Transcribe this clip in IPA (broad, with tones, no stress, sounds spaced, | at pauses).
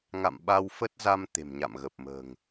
ŋ a̰˧˨ m ɓ a˧ w f ə˦˥ t̚ z a˧ m t̪ e̤˨˩ m ɲ a̰˧˨ m ɣ ə˨˩ p̚ m ə̤ː˨˩ ŋ